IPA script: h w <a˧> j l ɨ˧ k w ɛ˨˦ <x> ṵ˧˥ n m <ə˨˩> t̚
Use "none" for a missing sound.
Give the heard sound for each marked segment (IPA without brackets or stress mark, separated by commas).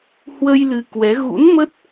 ə˧, ɣ, ə˦˥